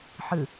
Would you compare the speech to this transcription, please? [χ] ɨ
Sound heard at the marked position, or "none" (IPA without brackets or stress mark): ħ